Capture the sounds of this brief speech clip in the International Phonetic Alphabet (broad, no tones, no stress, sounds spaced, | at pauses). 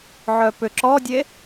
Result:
ʕ œ p ʏ ǁ ɔ dʲ e